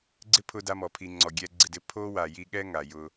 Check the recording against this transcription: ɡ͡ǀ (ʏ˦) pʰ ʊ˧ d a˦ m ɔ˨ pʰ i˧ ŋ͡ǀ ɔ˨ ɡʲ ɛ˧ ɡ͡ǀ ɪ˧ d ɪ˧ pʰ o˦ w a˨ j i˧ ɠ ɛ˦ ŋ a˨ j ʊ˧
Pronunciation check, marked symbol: incorrect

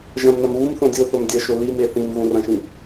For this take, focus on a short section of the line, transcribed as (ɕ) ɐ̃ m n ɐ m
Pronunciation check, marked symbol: incorrect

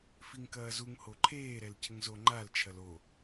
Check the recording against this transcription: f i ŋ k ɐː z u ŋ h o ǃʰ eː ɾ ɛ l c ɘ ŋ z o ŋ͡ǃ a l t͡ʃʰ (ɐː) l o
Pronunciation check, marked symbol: incorrect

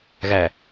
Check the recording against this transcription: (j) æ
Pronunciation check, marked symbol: incorrect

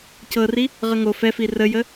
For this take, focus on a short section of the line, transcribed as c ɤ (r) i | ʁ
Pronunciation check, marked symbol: correct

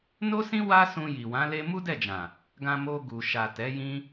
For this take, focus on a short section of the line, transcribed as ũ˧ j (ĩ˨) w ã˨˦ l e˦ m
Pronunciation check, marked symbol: incorrect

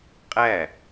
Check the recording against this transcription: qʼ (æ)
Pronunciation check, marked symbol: correct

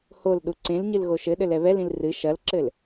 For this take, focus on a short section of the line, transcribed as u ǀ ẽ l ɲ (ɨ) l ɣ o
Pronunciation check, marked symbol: correct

